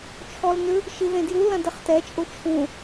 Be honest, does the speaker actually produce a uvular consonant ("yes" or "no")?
yes